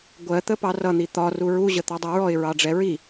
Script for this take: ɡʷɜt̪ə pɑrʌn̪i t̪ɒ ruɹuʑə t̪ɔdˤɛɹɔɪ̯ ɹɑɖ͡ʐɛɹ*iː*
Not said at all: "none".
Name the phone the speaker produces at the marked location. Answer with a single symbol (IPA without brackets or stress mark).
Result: i